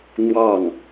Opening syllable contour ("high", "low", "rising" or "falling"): falling